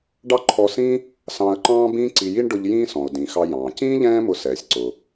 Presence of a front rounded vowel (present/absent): absent